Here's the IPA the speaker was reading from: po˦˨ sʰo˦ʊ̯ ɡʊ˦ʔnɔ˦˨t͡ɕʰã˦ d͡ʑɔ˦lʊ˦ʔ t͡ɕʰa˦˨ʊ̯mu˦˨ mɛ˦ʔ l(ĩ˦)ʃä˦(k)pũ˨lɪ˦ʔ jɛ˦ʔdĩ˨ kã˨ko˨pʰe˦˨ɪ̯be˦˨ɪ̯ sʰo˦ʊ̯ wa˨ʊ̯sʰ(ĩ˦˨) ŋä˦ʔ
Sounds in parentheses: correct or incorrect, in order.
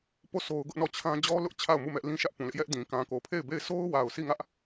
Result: correct, incorrect: ʔ, incorrect: i˦˨

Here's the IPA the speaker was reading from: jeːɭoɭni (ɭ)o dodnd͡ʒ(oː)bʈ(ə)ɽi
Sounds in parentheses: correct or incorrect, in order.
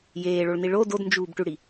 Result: correct, incorrect: uː, incorrect: ʉ

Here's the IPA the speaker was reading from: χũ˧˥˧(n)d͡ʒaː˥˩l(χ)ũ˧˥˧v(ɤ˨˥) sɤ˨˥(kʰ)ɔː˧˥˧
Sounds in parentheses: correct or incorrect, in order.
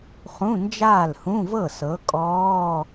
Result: correct, incorrect: h, incorrect: ɤ˥˩, incorrect: kʼ

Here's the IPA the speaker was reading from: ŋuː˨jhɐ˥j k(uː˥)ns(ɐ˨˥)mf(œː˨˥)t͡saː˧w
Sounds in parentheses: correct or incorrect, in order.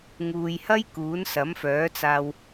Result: incorrect: uː˨˥, correct, correct

